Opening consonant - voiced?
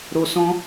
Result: yes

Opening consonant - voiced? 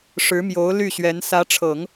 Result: no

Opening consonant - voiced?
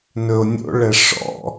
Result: yes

